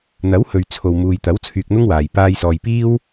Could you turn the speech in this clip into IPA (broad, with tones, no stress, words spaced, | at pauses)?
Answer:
n̪ɐ˨˥whɵ˨ɥ t͡sʰo˨wmuː˨jt̪ɐ˨˥w t͡sʰyː˧k̚n̪ʊ˥ŋwaː˨j paː˧j sɔː˨jpiː˥w